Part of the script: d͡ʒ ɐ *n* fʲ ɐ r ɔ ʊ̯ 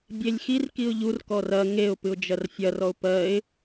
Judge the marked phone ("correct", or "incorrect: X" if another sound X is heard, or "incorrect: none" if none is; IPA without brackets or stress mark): incorrect: r